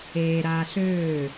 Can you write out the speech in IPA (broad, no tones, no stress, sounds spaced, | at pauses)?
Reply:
eː ɾ aː ɬ øː